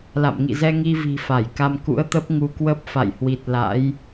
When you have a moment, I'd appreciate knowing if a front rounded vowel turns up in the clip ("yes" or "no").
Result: no